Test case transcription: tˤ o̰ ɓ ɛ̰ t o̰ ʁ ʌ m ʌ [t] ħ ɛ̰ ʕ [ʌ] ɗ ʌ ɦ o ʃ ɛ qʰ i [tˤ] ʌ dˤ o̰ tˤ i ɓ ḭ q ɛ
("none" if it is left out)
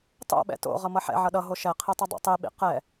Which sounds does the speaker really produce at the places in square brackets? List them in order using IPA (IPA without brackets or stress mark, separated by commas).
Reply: none, ʌ, tˤ